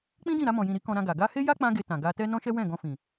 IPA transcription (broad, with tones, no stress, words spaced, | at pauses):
k͡pĩ˦dĩ˦˨ɾa˧ mɔ̃˨jĩ˨ɾi˨˦ kɔ̃˧ɾã˧ɡa˨ ɡa˧he˦ ja˦ k͡pã˦ɡe˧ tã˨ɡa˧tɛ˦ nɔ̃˦ʃɛ˦wɛ̃˦˨ ɡɔ̃˧fĩ˨